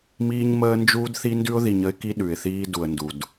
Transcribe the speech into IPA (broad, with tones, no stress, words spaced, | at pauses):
miː˦ɲməː˦nd͡ʒuː˦dθi˦ ndʉ˦ʊ̯ði˨ɲə˦ɪ̯ ki˦ɗʉ˨ɪ̯θiː˦ du˨ə̯ndu˨d